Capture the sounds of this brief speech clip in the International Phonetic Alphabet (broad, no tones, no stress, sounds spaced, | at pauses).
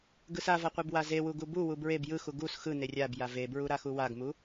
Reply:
ɡ ɯ s a v a qʷ e b w a z e w u ɡ u b u w u b ɹ e b j ɯ x u ɡ u s x ɯ n e rʲ a b j a v e b ɹ u ɾ a x u w a ɡ m u